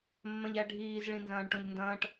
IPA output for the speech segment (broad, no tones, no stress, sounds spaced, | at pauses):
mː ɐ̃ ʎ æ ɖʱ iː z ɭ ĩ n z ɐ̃ː ɳ ʈ õ ʎ n d ɐ̃ː ʈ